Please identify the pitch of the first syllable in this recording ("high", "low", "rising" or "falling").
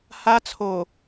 high